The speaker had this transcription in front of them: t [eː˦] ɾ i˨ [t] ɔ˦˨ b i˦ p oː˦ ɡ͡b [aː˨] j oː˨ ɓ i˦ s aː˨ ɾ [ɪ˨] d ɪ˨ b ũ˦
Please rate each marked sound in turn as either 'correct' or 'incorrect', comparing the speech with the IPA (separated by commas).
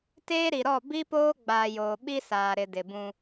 correct, incorrect, correct, correct